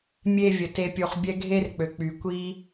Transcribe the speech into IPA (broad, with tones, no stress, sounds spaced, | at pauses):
mʲ e˨ vʲ ə˩ t e˨ pʲ u˨ χ bʲ ɛ˦ ɡʱ e˦ r k͡p ø˩ k͡p y˩ kʷ i˥